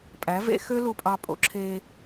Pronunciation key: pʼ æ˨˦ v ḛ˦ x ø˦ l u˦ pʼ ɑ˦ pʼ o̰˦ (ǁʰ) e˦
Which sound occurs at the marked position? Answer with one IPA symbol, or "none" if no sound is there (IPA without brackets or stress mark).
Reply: ǁʰ